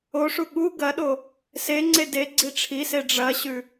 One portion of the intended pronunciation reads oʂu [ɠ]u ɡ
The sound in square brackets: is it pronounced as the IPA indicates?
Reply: yes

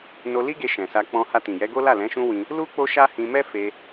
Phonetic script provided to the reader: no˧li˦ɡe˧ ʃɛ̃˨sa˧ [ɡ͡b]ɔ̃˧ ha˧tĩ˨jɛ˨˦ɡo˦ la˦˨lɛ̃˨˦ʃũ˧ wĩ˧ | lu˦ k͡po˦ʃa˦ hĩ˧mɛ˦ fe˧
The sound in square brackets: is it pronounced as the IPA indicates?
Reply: no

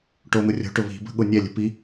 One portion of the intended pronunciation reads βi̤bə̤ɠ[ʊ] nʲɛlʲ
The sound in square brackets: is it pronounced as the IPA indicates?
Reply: yes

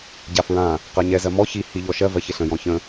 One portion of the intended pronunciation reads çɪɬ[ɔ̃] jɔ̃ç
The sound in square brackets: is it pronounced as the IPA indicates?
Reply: no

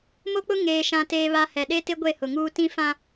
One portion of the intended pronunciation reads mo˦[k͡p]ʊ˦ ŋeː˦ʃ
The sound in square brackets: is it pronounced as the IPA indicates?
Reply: yes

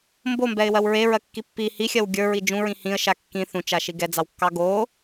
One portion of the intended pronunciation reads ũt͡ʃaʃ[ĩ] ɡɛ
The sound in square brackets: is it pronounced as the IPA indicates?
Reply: no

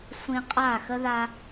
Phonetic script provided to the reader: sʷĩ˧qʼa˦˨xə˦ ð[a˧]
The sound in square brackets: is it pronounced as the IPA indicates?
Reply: yes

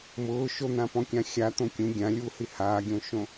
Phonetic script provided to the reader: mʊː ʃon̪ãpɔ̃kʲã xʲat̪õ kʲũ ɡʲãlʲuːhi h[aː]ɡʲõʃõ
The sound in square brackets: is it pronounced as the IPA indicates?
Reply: yes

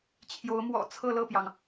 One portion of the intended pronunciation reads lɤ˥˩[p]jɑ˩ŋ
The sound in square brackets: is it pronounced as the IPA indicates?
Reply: yes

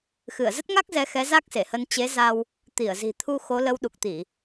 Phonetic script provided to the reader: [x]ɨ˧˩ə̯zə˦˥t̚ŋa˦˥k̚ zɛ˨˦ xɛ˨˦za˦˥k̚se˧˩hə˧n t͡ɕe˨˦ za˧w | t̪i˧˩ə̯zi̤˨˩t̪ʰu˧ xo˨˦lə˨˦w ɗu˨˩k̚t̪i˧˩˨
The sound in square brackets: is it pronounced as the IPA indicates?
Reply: yes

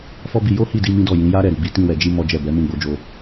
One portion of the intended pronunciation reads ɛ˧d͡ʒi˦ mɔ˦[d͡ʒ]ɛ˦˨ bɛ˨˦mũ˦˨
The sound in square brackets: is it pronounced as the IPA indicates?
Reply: yes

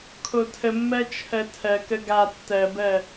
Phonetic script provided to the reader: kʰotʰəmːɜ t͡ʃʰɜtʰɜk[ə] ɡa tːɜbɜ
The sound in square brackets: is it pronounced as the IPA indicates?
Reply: yes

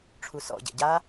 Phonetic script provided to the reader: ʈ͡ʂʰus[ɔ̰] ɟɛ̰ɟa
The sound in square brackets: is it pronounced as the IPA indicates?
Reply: yes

